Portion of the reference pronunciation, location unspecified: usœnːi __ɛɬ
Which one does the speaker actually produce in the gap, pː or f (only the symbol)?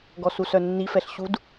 f